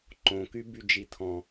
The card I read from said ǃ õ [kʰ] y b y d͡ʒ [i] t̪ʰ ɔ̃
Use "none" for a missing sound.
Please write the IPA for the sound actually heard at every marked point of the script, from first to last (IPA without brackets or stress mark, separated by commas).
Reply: k, i